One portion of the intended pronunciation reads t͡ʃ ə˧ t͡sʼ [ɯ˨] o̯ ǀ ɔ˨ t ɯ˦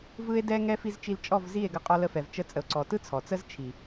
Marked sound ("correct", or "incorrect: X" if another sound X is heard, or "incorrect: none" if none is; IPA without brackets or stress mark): incorrect: ə˨